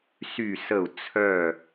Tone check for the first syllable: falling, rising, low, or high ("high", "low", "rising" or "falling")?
low